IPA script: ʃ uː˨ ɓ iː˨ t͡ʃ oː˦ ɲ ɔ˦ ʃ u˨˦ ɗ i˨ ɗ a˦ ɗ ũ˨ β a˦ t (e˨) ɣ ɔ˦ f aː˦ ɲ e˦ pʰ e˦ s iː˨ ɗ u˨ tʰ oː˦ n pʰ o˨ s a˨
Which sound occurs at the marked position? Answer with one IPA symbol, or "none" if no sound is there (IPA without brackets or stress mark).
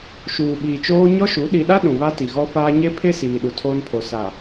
i˨